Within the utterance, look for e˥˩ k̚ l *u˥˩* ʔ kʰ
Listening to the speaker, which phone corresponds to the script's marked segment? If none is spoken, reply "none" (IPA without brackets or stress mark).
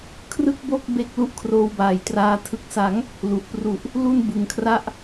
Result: u˥˩